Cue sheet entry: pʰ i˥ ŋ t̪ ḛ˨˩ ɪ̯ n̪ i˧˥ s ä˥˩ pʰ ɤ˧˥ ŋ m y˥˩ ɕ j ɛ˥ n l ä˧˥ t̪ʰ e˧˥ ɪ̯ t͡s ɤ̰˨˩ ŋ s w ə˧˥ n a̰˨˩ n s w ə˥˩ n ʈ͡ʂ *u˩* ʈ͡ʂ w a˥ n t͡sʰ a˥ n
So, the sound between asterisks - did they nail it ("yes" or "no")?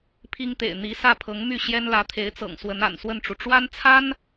yes